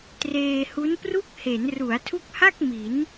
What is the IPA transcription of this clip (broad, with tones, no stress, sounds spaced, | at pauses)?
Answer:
t r eː˧ h u˦˥ n p r u˥˩ k̚ h e˩˦ n r u˩˦ a̯ tʰ u˦˥ k̚ h a˥˩ k̚ m i˩˦ n